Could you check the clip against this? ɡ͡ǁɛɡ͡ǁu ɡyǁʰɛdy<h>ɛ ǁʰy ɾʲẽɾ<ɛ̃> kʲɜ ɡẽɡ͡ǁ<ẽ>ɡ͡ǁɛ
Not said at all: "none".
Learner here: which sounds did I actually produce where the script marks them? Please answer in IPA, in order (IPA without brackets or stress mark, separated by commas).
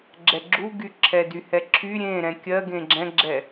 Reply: h, ɛ̃, ɛ̃